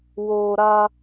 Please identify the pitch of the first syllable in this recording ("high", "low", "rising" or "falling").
low